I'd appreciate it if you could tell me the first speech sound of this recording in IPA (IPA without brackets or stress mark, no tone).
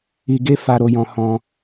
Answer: i